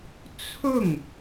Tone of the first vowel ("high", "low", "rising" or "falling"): falling